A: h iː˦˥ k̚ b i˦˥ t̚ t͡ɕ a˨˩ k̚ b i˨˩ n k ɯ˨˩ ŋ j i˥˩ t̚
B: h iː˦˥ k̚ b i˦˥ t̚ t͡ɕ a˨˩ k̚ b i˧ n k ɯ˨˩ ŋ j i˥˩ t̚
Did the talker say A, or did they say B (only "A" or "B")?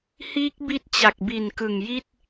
A